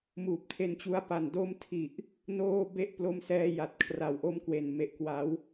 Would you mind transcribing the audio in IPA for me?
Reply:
m uː˨˩ p̚ tʰ e˧ n t͡ɕ u˦˥ a̯ p a˨˩ n d o˦˥ m tʰ i˨˩ ʔ | n oː˥˩ b e˦˥ ʔ p l o˦˥ m s ɛː˧ j a˨˩ t̚ kʰ r a˨˩ w ʔ o˦˥ m k w e˨˩ n m e˨˩ ʔ k w a˩˦ w

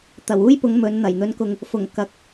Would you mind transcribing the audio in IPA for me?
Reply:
t̪ ɐ˨˩ w uː˥ j p ʊ˨˧ ŋ m ɵ˨˧ n n̪ ɐ˨˩ j n̪ ɵ˨˧ n k ʊ˨ ŋ | f ʊ˨˩ ŋ k ɐ˨˥ k̚

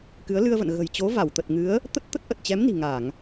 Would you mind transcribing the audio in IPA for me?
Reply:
k ɨ˨˦ ə̯ l ɨ˧ ə̯ v ə̰˧˨ n ɣ ə̤˨˩ j t͡ɕ o˨˦ v a˧˩ w t̪ ə˨˩ t̚ ŋ ɨ˨˦ ə̯ | t̪ ə˦˥ t̚ t̪ ə˦˥ t̚ ʔ ə˨˩ t̚ t͡ɕ ɛ˨˦ m n i̤˨˩ ŋ a˧˩˨ ŋ

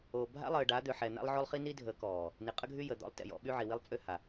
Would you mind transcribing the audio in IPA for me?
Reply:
o˨ bʱ a̰˦ lˠ əː˨ ɖ a˨˦ d̪ ø˨ ħ ɛ˨ n̪ a̰˦ lˠ ʕ o˦ lˠ χ i˦ n i˦ dʱ ə˨˦ k ɔː˨ | n i˨ qʼ ə˦ ɡʱ y˦ j ə˨ d̪ ɔ̰˦ lˠ t ɛ̰˨ j ɔ̰˦ ɓ y˦ ʕ i˨ w i˦ lˠ t͡sʼ ø˦ h a˨

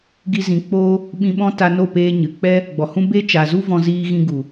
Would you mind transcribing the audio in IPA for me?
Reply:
ɡ i˦ z ĩ˧ k͡p oː˦ | ɓ ĩ˧ ɓ ɔ̃˦ t a˧ n o˦˨ p eː˦ ɲ ɨ˨ k͡p ɛ˦ | ɡ͡b ɔ˨ h ũ˦ b e˦ t͡ʃ a˨ z u˦ v ɔ̃˧ z iː˦ ɣ ĩ˧ ɡ u˨

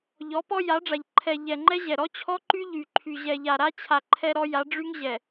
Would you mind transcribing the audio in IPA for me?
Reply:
ʎ ɔ˨˦ p ɔ˦ j a˨˦ ɖ͡ʐ a˨ ʎ ǃʰ ɛ˨ ʎ ɛ˨ ŋ͡ǃ ɛ˦ ʑ ɛ˨ ɾ ɔ˦ t͡ɕʰ ɔ˦ ǃ y˦ ʎ y˨ ǃʰ y˨ ʑ ɛ˨ ʎ a˨ ɾ a˦ t͡ɕʰ a˨ ǃʰ ɛ˦ ɾ ɔ˦ j a˨˦ ɖ͡ʐ y˦ ŋ ʑ ɛ˨

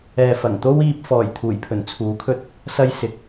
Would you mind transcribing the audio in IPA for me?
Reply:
ɛː˨ f ɐ˨˩ ŋ t̪ o˥ w iː˧ p̚ f ɔː˨˩ j t̪ʰ uː˨˩ j pʰ ɵ˨˩ n t͡sʰ uː˨˥ kʰ ɵ˧ t̚ | s ɐ˧ j s ɪ˨ k̚

